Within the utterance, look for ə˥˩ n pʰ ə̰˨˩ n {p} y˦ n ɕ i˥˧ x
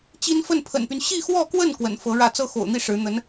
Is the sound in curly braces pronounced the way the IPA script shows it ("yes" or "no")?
yes